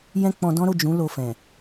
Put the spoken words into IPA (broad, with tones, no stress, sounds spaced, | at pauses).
j ɛ̃˦ k͡p ɔ̃˧ d ɔ̃˦ ɾ o˦˨ d͡ʒ ũ˨˦ l o˧ f ɛ̃˨